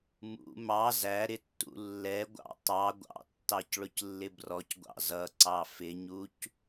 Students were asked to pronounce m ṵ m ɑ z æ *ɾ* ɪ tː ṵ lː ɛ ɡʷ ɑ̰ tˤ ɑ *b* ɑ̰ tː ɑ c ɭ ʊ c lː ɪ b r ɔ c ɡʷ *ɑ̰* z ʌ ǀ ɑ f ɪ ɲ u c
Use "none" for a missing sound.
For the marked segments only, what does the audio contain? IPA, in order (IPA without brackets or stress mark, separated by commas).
ɾ, ɡʷ, ɑ̰